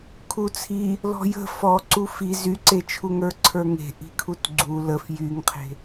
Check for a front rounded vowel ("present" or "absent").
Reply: present